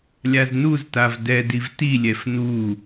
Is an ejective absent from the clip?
yes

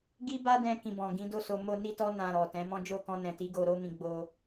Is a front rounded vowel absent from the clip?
yes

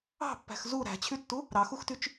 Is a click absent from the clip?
yes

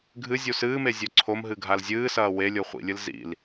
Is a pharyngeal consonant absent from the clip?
yes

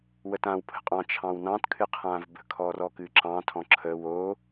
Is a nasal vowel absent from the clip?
no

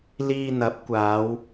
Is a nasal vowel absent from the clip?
yes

